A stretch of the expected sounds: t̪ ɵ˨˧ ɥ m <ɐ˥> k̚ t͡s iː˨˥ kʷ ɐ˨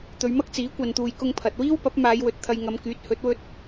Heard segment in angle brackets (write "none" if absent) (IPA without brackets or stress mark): ɐ˥